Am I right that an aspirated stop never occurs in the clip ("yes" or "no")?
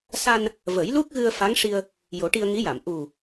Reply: yes